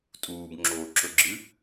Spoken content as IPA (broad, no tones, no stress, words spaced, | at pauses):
tʼuːbŋ͡ǁoːǁɵɡ͡ǁɨ